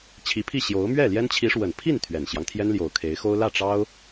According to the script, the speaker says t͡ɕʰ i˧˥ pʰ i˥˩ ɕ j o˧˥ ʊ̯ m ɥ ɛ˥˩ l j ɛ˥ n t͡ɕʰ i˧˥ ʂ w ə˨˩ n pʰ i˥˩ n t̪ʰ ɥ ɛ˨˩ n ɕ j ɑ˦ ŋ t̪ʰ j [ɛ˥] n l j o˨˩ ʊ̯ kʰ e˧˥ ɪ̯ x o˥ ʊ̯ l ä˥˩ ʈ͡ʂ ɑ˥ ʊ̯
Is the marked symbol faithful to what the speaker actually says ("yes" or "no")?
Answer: yes